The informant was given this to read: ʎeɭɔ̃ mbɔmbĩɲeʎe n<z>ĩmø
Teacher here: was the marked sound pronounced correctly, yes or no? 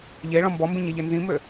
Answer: yes